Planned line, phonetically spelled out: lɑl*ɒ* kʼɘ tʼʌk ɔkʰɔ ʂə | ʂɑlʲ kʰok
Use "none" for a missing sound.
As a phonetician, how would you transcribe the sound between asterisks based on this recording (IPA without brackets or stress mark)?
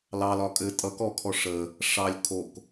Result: ɒ